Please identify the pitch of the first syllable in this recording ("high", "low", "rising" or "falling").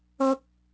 high